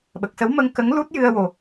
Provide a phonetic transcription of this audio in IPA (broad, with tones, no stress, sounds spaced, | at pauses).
ɓ ə˨˩ k̚ s ə˧˥ w m ə˧ ŋ k ə˧˥ ŋ l u˦˥ t̚ j ɨ˧ ə̯ w o˨˩